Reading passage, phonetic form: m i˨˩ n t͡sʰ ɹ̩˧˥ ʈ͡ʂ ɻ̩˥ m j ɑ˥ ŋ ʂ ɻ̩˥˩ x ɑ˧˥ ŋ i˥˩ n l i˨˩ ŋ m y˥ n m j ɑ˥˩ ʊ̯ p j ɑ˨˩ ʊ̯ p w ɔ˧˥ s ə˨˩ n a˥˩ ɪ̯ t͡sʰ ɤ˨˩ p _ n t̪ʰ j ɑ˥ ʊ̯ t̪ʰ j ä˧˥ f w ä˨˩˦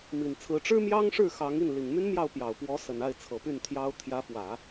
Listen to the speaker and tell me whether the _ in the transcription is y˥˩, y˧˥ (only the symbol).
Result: y˥˩